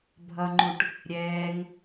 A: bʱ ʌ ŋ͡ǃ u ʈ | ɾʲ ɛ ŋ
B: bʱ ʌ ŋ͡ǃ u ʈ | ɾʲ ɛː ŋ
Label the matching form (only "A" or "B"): B